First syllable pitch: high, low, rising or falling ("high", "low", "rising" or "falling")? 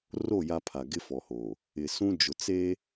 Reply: falling